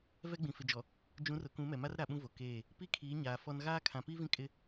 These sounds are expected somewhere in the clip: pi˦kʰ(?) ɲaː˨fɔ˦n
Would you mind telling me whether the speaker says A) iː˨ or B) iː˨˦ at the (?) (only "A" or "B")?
B